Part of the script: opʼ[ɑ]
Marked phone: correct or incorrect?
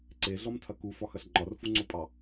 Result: correct